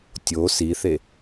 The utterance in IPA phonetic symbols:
tʲ o s i θ e

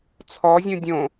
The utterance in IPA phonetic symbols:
t͡sʰ ɔ zʲ ũ dʲ õ

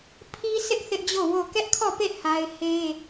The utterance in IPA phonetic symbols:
pʰ i˦ s ɪ˦ ʔ θ ɪ˦ ʔ d͡ʑ o˦˨ w o˦˨ k ɛ˦ ʔ kʰ ɔ˦˨ p e˦˨ h a˦ ɪ̯ h e˦

